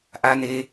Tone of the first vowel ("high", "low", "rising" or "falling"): low